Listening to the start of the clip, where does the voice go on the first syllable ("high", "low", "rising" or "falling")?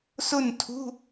falling